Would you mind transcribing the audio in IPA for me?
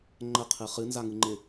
ŋ͡ǃ ə qʰ ɨ χ ɨ n z a ŋ ɨ ŋ͡ǃ ɪ

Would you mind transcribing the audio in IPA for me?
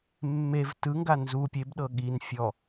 mː e v t ɯ ŋ ɡ a n z u pʲ e b ɗ ɤ ɠ i n fʲ ɔ

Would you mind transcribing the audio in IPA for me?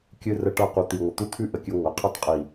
kʲ ɨ˧ r ə˧ ʈ ʌ˧ q u˨ t̪ i˨ ŋʷ ə˨ t̪ u˦ t̪ʰ ʉ˦˨ ʔ ə˨ kʲ ɨ˧ ŋʷ ə˨˦ qʰ ɨ˧ tˤ qʼ i˨

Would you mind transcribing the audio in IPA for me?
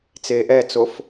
t͡s eː ʔ ɛ t͡s o f

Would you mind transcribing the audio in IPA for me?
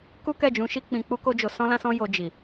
k u˦ k ɛ˦˨ d͡ʒ ũ˨˦ ʃ i˦ k͡p ĩ˧ k͡p u˦ k o˦ d͡ʒ o˧ s ɔ̃˦ l ã˦ s ɔ̃˦ j o˧ d͡ʒ i˨

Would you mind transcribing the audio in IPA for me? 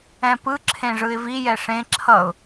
ɛ̃ p ɯ ǁʰ ẽ ʐ ɯ ɪ̯ v i j ɛ ʂ ẽ ǁʰ ʌ ʊ̯

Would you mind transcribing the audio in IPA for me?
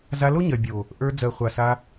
z a˧ l o˦ ɲ ɜ˨ bʲ o˨ | ʔ ə˞˧ d͡z ɜ˨ χʷ a˨ s a˧

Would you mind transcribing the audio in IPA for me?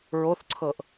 ɹ o θ ǀʰ ɤ ʔ

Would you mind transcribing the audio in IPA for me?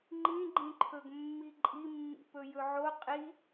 ŋ͡ǃ ĩ ɡ͡ǃ ĩ ǃʰ ɵ ɡ mː i ǃʼ i mː ḭ p ɵ j ɵ ʕ o qʼ i

